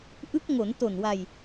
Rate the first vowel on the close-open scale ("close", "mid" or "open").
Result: close